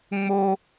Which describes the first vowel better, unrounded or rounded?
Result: rounded